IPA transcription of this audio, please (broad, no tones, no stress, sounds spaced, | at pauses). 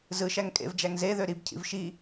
z ɯ ʃ æ ŋ kʼ ḛ v d͡ʒ æ ŋ z e ð ø ɾ i b cʰ ḭ v ʃ i